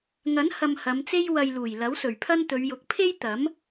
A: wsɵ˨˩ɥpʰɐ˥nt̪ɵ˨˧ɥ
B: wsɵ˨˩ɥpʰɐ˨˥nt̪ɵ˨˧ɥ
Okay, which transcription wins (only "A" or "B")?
A